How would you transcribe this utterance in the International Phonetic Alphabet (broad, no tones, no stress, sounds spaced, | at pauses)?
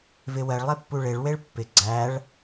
v ɪ w ɜ ɭ lˠ e pː u ɭ e ɭ w e ɭ pː ɪ ɡ͡ǀ æ ɭ